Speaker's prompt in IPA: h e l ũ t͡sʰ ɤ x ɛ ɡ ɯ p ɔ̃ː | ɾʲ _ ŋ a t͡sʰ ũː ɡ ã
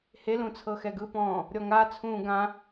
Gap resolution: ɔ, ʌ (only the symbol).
ɔ